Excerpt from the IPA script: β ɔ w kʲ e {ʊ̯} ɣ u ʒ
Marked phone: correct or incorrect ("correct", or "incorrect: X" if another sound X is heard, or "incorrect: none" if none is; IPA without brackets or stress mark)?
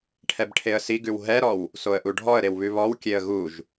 incorrect: ə̯